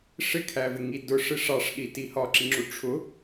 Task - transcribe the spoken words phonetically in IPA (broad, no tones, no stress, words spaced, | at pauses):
ʂɪkʰævɪŋi dʊʂɪ ʂɑʂɗiti hɒǁiŋ͡ǁu ʈ͡ʂʰʊ